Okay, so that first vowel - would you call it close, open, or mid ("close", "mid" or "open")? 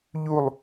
close